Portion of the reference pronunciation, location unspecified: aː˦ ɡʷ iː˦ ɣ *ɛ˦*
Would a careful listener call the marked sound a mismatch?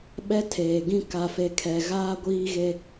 yes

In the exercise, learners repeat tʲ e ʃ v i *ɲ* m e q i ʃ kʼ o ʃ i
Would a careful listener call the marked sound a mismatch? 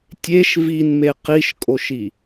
yes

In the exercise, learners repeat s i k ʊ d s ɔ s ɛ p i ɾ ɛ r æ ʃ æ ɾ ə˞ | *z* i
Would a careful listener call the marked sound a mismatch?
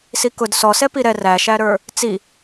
yes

